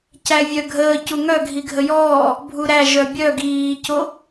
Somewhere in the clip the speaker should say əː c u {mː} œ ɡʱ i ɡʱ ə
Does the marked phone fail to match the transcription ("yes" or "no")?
yes